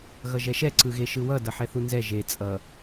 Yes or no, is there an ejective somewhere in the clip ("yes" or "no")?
yes